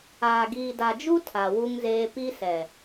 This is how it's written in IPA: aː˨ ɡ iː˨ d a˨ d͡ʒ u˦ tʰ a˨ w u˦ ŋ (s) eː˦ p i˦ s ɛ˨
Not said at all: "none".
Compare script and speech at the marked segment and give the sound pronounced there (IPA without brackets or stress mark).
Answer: z